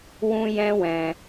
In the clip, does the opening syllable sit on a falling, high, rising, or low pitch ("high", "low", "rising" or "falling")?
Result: high